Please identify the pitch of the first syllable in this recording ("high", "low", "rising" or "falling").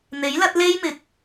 rising